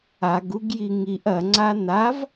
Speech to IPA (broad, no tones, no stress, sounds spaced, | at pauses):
a ɡ u ɡ j i ŋ i ʔ ɐ ŋ͡ǀ a n a v